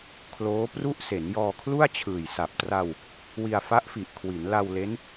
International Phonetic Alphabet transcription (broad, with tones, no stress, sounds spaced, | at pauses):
kʰ l oː˦˥ p r u˥˩ ʔ s e˩˦ n j ɔː˧ kʰ l u˥˩ a̯ t͡ɕʰ ɯː˨˩ j s a˨˩ p̚ t r a˧ w | w i˧ a̯ f a˦˥ ʔ f i˨˩ ʔ kʰ w i˩˦ n l a˧ w l e˦˥ n